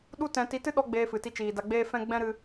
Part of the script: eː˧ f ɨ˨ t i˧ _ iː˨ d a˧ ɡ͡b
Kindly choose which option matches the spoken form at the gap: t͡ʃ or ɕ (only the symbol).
t͡ʃ